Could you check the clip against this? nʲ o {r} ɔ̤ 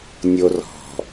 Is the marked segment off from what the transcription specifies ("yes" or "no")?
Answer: no